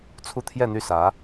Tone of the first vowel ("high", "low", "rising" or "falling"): falling